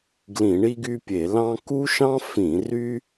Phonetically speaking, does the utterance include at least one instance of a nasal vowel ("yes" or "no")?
yes